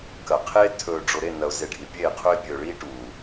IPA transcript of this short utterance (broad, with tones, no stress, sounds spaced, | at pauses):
k ɐ˨ qʰ eː˦ tʰ ɵː˨ ɖ͡ʐ o˨ ɾ e˦˨ n ɐ˨ ʊ̯ z e˨ ɖʱ i˨ pʲ eː˦˨ qʰ ɵ˦ ɪ̯ pʲ ɵː˨ ɭ iː˦ ʈ uː˨